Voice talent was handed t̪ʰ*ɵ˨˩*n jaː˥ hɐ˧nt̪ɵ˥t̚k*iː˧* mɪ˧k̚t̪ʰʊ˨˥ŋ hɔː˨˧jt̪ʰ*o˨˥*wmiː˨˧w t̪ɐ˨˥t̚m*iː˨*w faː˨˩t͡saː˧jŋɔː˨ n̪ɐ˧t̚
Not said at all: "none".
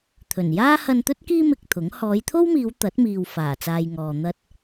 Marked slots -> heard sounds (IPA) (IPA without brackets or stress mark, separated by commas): ɵ˨˩, iː˥, o˥, iː˨